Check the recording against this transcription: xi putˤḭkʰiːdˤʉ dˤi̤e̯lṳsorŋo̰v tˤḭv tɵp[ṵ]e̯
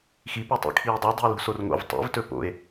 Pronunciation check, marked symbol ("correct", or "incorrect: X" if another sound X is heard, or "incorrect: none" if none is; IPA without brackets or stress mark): incorrect: o̰